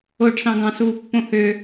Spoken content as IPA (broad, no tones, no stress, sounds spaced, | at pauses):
o ɖ s ɑ̃ ɡ ɑ̃ s uː pː õ h ø